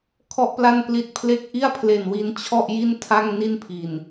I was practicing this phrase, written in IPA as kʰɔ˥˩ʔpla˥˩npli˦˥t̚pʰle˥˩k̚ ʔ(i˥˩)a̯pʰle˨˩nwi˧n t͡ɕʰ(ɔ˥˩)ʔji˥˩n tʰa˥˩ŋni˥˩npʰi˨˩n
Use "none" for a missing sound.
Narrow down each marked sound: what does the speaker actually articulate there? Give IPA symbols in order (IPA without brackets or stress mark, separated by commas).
i˥˩, ɔ˥˩